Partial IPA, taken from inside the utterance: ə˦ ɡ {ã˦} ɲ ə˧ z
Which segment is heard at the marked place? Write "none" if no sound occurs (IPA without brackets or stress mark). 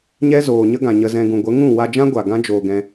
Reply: ã˨